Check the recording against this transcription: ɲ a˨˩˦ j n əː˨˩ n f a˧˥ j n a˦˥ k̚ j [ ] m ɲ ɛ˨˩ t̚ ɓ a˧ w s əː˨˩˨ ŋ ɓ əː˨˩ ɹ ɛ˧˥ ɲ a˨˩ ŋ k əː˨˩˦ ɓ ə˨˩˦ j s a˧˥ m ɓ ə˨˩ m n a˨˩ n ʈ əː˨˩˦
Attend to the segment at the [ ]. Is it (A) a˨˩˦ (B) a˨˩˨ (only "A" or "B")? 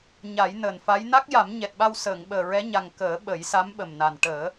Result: A